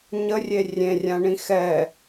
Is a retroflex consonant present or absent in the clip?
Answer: present